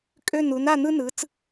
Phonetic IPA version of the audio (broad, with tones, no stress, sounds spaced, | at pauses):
kʼ ø˦˨ n u˩˧ n a˦˨ n̪ ɯ˦ n ɯ˩˧ t͡s